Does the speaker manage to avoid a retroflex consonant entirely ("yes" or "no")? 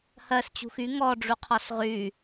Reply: no